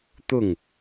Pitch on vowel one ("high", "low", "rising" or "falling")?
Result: falling